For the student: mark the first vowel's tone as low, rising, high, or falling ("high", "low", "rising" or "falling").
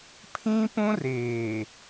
high